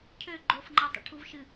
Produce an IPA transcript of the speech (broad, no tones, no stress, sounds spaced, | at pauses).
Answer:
cʰ ø ɡ͡ǃ o f ŋ͡ǃ ɤ tˤ ə̰ ʈʰ u v ʃ ɨ